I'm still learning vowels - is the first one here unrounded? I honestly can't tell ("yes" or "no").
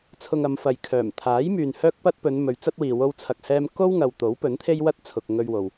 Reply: no